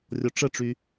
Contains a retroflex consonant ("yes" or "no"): yes